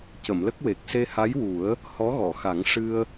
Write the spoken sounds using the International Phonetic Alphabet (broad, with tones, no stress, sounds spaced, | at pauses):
c ə˨˩˨ m l ə˦˥ k̚ w e˨˩ k̚ s e˧ h a˧˥ j w u˨˩˦ ə̯ | h ɔ˧˥ ɣ ɔ˨˩˨ x a˨˩˦ ŋ ʂ ɨ˧ ə̯